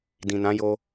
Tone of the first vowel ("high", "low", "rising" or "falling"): low